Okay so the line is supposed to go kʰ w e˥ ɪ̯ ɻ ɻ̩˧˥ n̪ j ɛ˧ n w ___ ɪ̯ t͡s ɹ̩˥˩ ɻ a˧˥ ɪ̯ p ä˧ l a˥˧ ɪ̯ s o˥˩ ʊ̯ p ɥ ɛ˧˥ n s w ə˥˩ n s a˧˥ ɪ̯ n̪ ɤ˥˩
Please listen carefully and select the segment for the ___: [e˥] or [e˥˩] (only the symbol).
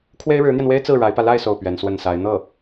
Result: e˥